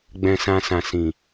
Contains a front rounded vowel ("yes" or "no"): no